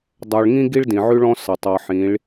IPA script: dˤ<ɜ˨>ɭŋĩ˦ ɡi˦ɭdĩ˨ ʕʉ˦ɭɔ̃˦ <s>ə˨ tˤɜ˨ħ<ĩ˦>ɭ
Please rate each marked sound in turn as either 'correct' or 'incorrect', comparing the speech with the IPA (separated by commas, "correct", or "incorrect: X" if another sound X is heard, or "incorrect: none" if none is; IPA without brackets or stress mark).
correct, correct, incorrect: ĩ˨˦